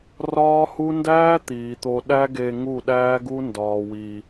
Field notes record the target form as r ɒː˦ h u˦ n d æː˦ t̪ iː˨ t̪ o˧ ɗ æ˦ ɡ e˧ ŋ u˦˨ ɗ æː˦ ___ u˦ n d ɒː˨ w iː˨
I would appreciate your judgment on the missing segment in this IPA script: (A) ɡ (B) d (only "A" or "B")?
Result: A